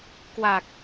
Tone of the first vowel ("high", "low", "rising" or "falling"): low